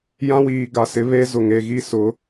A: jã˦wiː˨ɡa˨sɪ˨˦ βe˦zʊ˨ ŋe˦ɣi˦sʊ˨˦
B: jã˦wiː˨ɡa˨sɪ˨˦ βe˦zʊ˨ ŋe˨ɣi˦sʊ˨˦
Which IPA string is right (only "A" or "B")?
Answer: B